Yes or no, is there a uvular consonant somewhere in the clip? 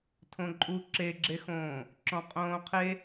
yes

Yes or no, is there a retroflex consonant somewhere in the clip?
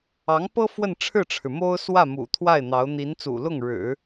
yes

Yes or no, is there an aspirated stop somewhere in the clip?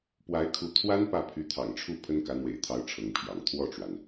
yes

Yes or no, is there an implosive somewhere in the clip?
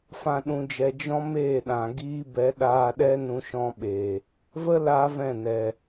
yes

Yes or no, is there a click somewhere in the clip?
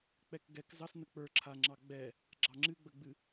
yes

